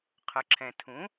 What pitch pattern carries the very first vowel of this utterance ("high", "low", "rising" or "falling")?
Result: low